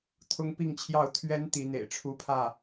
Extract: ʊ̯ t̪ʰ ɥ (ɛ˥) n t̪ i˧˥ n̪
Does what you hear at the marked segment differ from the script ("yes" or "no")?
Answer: no